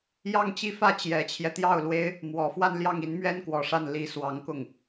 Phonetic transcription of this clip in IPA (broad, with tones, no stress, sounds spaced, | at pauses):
j ɑ˥˧ ŋ t͡ɕ i˥˧ f ä˥˩ t͡ɕ j ɛ˨˩ t͡ɕʰ j ɛ˦ t̪ j ɑ˥˩ ʊ̯ l w e˥ ɪ̯ | m w ɔ˨˩ f w a˥˧ n l j ɑ˥˩ ŋ i˧˥ n m ɥ ɛ˥ n k w ɔ˨˩ ʂ a˥˩ n l i˧˥ s w ɑ˧˥ ŋ k ʊ˥˩ ŋ